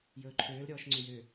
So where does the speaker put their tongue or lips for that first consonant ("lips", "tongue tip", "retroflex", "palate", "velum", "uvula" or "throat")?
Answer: palate